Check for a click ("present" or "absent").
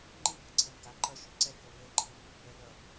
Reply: present